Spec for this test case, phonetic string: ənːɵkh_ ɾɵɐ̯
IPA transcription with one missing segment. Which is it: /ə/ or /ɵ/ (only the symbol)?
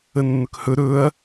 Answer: ɵ